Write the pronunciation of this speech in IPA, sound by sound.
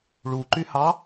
ɭuǃyhɑ

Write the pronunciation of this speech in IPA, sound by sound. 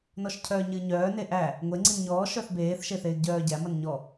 nɔʃcʰœːɲɨ ɲœː neʔæ | ŋʷe ŋ͡ǀinɲɔː ʃœθbeːθ ʃeθeːɡɟœːɟæ mʌnɲɔ

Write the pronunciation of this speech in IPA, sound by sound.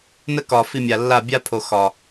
nə˦kɒ˨ fi˧mʲa˨lːa˦˨ bʲa˦pʰo˨ xɒ˨

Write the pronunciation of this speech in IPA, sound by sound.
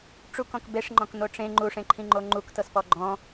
ʈ͡ʂukɔ̃k beʂŋ͡ǃɔ̃kn̪o ʈ͡ʂẽ ŋ͡ǃuʂẽǃʰĩŋ͡ǃo ŋ͡ǃuktɤspɔ ɡ͡ǃɔ̃

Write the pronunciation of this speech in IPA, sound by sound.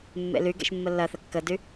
mːḛlyɡḛʃ mːəlːɐθə kːədy

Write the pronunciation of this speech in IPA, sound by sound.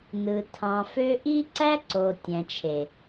nɯ˨ tʰɑ̃˨fø˦ ʔi˦ǀæ˦ ǀo˨ tʲæ̃˨t͡ʃʰe˨

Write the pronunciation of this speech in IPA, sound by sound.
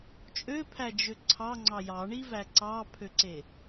t͡ʃʼøpʰæd͡ʒø ǀʰɑŋ͡ǀɑ jɑɳivæ ǀɑpʰøǀe

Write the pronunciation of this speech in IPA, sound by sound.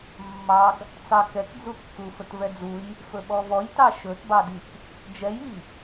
mːɑɡ | t͡sɑkɛkd͡zukːu fətvɛd͡zuj | fɵɓɔvɔjtɑ ʃɵtbɑdik | d͡ʒɛji

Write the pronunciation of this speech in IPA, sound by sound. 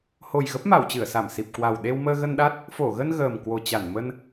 ho˨˩jɣə˦˥p̚ma˧˩w t͡ɕɨ˧˩ə̯sa˧˩msi˨˩p̚kwa˨˩w ɗe˧wməː˧ɣə˧nɗa˦˥t̚ | fo˧˩ɣə˧n ɣəː˨˩mkwo˨˩t͡ɕa˧˩n mə˧n

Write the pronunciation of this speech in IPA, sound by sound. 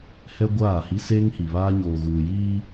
hɛ˦ɡʷaː˦˨hi˦ seː˦ŋhi˨βaː˦ ɲoː˨ɣuː˨jiː˦

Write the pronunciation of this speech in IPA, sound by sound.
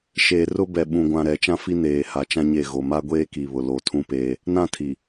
ʃeː˨ rʊ˦bɛ˨ ɓũ˨ɡʷã˨ɾɛ˨ t͡ʃã˦fi˦neː˨ ha˨t͡ʃã˦ɲe˦˨ ɣo˨ma˦ɡʷeː˦ki˨ βʊ˨lo˨tʰũ˦peː˦ | nã˦˨tʰi˨

